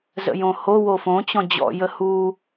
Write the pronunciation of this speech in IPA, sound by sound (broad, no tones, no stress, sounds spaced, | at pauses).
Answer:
z ə̰ j õ h o w o f õ t͡ɕ ɔ̃ d͡ʑ ɔ̰ j ə h u